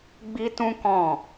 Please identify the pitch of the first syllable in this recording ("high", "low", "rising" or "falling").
high